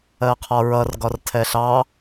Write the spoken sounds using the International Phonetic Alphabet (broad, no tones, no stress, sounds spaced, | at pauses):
ɜ qʰ ɒ ɹ ʌ r ɡ ɒ r tʰ ɛ ɬ ɑ